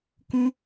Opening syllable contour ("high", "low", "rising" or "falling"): high